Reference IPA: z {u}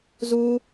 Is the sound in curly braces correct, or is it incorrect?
correct